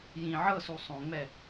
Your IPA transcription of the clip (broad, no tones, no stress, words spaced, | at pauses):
jĩ ʕɤsu sˤõŋ͡mɛ